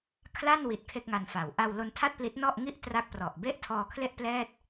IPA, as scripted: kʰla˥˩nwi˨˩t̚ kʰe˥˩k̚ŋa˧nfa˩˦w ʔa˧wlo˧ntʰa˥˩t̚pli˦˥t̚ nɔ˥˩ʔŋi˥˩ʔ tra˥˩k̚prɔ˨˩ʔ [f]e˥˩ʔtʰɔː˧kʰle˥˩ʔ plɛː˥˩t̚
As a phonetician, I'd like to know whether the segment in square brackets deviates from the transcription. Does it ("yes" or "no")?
yes